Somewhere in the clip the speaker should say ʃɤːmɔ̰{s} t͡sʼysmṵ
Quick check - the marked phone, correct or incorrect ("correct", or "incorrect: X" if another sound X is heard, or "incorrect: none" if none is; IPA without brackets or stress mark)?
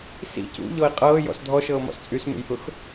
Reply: correct